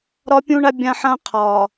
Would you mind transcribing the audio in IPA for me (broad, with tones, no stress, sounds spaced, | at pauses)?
ɾ ɒ˦ pʲ ũ˦ ɳ a˦ bʲ ã˦ ħ ã˦ qʰ ɒː˨